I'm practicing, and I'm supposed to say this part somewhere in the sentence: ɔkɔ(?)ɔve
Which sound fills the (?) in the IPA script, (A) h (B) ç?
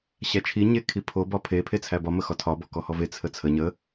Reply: A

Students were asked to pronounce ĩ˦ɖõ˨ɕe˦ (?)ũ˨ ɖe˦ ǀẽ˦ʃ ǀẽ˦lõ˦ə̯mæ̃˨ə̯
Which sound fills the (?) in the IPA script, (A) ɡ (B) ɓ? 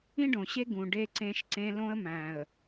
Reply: A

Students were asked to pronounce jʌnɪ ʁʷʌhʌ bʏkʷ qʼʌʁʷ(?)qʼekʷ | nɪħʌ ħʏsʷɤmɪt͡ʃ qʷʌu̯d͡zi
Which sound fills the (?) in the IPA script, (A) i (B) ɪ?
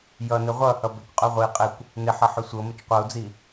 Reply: A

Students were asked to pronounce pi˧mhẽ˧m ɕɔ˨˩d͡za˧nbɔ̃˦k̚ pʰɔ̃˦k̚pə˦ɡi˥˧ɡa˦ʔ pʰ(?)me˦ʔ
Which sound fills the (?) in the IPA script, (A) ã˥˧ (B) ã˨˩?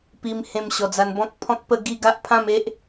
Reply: A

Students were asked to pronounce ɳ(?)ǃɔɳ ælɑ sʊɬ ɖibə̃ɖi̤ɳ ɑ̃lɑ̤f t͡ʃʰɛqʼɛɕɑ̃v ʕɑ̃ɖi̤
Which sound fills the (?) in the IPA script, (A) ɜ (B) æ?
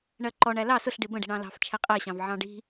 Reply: A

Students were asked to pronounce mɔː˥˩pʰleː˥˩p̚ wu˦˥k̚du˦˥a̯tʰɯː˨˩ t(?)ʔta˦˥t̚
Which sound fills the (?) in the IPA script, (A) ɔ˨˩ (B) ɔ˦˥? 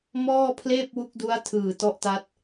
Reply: B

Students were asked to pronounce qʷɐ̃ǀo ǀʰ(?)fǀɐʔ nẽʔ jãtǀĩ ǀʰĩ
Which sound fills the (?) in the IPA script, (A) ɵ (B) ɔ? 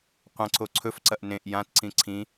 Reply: A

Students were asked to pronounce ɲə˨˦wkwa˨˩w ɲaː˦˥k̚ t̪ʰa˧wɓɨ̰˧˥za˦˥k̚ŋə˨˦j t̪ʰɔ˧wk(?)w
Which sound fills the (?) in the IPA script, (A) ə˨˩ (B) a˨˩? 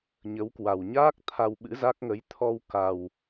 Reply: B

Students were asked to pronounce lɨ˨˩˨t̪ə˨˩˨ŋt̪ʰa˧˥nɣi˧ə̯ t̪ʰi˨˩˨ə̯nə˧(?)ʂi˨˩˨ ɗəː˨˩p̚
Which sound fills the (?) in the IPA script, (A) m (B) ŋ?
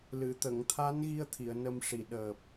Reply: A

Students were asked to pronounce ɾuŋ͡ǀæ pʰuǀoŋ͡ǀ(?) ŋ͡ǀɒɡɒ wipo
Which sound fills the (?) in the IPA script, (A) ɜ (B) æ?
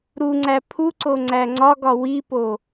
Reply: B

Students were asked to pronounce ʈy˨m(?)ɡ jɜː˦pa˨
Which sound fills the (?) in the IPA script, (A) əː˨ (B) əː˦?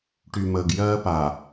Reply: A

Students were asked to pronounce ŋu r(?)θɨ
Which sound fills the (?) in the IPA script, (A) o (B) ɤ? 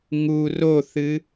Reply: A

